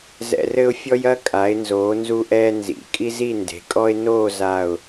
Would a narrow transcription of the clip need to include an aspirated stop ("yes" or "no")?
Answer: no